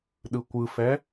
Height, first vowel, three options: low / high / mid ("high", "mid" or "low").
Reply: high